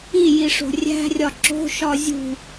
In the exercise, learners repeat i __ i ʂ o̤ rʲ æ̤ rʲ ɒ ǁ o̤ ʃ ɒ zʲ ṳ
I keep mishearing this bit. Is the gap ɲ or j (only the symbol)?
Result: j